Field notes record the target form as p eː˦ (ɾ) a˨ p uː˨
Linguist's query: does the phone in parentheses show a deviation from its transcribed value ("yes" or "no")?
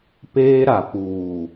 no